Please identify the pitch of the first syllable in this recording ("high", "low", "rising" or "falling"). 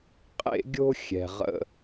high